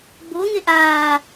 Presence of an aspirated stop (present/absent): absent